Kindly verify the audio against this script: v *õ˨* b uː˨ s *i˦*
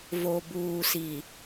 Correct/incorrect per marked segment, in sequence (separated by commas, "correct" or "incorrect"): incorrect, incorrect